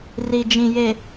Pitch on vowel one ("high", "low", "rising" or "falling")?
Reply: low